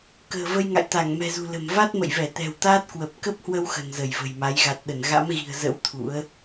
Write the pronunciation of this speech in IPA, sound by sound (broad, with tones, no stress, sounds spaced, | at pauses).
k ə̤ː˨˩ v ə˧ j ŋ a̰˧˨ j t̪ a˧˩ ŋ m ɛ̤˨˩ z ṳ˨˩ l ə̤˨˩ m v a˦˥ t̚ m ə̰˧˨ j v ɛ˧˩ t̪ ɛ̤˨˩ w t̪ aː˦˥ t̚ k w ə˨˩ p̚ k ə˦˥ p̚ h w ə˧ w x ə̤˨˩ n z ə˧˩ j v ə̤˨˩ j m a˨˦ j ɣ a˨˩ t̚ ɗ ə˧˩ n ɣ a̰˧˥ m ɣ i̤˨˩ ə̯ z ə̰˧˥ w t̪ʰ ṵ˧˥ ə̯